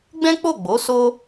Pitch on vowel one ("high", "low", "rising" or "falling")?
high